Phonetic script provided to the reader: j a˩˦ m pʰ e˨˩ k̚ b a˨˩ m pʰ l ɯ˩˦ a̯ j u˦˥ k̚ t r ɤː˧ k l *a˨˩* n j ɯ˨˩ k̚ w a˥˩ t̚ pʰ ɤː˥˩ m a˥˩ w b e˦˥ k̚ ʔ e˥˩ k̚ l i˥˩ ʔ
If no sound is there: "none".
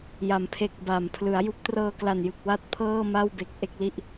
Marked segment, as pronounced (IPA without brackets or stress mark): a˨˩